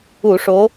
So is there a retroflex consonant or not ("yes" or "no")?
yes